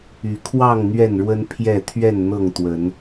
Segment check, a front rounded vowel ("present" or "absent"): present